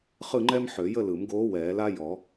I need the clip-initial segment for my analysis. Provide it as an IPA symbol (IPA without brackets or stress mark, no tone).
χ